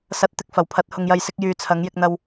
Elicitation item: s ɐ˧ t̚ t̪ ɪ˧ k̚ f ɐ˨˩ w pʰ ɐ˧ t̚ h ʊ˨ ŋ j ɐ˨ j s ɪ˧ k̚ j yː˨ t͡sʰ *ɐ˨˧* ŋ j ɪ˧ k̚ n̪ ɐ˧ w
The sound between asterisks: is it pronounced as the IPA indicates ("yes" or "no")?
yes